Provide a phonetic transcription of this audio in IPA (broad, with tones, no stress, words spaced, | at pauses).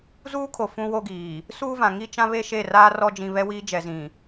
zuː˦kʰo˨ fũ˦wo˦ɡiː˨ | suː˦vã˨ ŋi˦t͡ʃã˦βe˦ ʃe˦˨raː˦ rɔ˦ d͡ʒĩ˦ βɛ˦wiː˦ d͡ʒɛ˨zĩ˨